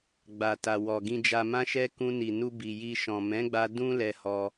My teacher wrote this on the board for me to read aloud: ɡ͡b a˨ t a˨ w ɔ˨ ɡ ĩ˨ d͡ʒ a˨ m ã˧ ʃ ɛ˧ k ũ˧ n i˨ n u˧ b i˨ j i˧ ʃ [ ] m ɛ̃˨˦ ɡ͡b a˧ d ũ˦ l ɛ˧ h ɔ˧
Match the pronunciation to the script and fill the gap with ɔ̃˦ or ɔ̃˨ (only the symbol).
ɔ̃˨